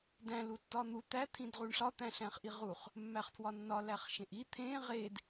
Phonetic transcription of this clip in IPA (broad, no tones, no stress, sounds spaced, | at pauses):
d æ̃ l u tː ɒ n̪ u t̪ æ t̪ʰ ĩ d ʁ u ɳ ɬ ɒ t̪ æ̃ ɬ æ̃ χ ʔ i ʁ u χ | mː æ χ pʰ w ɒ nː ɒ l æ χ ʃ ẽ ʔ i t̪ʰ ẽ ʁ e d